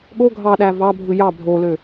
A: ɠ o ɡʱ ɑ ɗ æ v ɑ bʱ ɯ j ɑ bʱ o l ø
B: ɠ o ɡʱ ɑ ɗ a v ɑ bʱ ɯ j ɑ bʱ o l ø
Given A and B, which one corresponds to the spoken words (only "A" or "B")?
A